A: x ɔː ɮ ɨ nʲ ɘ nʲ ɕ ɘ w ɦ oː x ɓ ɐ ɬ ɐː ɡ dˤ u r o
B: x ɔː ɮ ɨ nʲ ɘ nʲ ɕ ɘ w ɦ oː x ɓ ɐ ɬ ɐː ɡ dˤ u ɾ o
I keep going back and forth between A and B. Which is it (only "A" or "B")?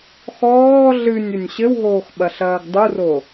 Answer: A